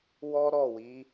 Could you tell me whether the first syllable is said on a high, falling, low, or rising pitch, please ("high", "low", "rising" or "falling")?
high